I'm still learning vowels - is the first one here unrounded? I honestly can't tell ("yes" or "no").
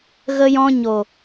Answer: yes